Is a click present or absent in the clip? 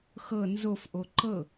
present